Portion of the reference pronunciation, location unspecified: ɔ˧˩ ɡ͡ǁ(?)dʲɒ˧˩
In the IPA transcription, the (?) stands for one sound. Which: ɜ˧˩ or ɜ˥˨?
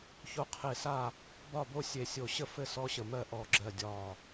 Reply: ɜ˧˩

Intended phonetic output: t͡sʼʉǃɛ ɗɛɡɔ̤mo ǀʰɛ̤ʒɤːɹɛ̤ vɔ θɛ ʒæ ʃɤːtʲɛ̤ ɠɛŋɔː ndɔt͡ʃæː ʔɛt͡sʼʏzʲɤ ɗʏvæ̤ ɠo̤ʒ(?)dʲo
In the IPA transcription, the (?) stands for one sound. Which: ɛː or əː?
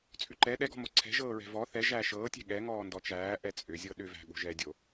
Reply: ɛː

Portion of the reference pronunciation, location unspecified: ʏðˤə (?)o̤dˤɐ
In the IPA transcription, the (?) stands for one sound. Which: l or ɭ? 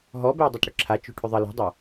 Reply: l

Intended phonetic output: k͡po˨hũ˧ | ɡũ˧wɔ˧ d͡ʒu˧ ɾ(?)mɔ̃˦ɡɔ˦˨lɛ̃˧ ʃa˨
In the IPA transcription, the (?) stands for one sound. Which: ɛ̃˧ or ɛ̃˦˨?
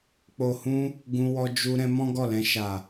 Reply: ɛ̃˧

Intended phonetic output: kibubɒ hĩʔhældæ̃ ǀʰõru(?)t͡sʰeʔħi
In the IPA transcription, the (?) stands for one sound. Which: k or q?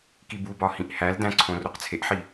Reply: q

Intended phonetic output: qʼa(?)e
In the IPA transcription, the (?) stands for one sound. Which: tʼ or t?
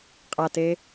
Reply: t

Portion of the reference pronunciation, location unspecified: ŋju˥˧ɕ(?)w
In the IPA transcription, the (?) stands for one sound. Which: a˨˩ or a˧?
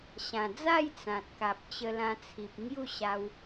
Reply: a˧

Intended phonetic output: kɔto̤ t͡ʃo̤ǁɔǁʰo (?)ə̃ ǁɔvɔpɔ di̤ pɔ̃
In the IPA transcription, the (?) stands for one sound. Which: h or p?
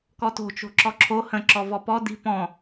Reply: h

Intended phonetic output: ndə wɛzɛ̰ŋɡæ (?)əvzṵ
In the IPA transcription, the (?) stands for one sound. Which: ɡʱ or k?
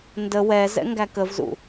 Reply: k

